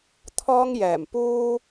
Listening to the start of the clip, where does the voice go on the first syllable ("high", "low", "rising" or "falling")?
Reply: high